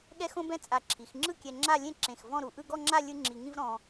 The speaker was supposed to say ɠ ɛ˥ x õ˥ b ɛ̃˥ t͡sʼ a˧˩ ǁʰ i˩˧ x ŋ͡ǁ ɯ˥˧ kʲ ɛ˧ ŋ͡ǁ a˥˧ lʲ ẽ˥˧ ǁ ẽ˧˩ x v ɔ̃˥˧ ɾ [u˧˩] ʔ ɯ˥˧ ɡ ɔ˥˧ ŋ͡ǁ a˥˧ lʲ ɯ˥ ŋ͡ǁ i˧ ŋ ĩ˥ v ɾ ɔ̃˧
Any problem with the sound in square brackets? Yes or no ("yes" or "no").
no